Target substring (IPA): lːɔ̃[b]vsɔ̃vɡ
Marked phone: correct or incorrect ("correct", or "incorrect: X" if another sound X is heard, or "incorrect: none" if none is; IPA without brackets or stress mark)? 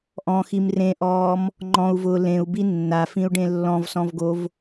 incorrect: none